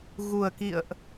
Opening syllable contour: low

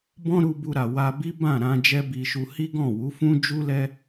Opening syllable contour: high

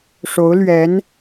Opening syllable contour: rising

